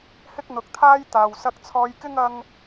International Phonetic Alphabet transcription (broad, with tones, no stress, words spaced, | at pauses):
hɪ˥k̚n̪ʊ˨˥k̚t̪ʰaː˥j t̪aː˨w sɐ˧k̚t͡sʰɔː˧jkɪ˥ŋ ɐ˥ŋ